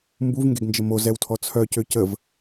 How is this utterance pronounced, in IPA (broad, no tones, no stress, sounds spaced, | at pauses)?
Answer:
m b u v ŋ ɡ e ɡ n d͡ʒ ə m o z ɛ w tʰ ɔ t͡sʰ œ c ø c ə v